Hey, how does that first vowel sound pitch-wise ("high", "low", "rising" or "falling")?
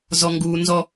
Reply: high